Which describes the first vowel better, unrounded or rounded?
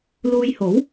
rounded